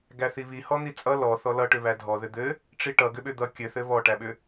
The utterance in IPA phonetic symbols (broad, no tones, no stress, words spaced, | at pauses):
ɡæθiβi hɔn̪it͡sʼʌ lɔ θɔlʌʈʏ βædʱɔðɘ d̪ɘ | ʈ͡ʂiʈʌɡʏɓʏ d̪ʌ kʲɘθɘ βɔʈæɓʏ